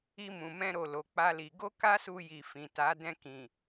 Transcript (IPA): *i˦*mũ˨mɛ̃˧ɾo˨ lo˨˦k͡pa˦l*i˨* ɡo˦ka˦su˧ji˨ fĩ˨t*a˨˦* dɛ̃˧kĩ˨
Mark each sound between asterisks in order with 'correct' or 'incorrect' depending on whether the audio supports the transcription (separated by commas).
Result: incorrect, incorrect, correct